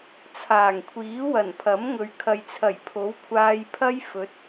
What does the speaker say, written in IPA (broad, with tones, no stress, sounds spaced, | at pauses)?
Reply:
t͡sʰ aː˨˩ ŋ kʷʰ iː˨˥ w ɐ˨˩ n pʰ ɐ˨˥ m ŋ ɵ˨ ɥ kʰ ɐ˨ j t͡sʰ ɐ˨˩ j pʰ o˨˥ w kʷʰ aː˧ j pʰ ɐ˥ j f ɵ˨˥ t̚